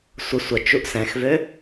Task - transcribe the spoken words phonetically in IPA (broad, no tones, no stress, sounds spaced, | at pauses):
sʷ ə sʷ ə t͡ʃ u ʔ s ɛ̃ x v ø